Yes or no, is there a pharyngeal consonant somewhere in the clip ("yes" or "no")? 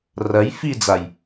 no